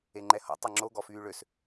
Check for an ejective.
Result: absent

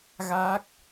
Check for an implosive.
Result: absent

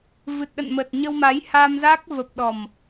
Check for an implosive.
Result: present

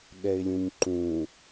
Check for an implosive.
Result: present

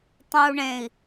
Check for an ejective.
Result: absent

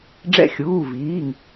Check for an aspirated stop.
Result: absent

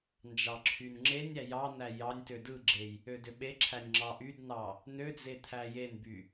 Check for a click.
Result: present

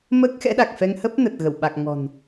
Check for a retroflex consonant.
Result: absent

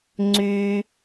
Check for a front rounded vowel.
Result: present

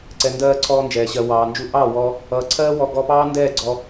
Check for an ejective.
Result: absent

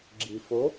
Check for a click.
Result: present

